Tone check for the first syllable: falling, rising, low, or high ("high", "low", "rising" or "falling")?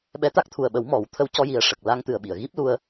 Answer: rising